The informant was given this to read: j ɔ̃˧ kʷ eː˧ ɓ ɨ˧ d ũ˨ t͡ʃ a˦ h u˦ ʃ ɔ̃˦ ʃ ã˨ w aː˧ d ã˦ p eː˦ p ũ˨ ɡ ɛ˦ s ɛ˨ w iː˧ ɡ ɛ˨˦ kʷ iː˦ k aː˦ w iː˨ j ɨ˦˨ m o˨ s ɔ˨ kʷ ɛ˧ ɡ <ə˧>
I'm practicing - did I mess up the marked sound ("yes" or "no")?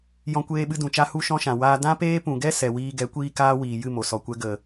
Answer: yes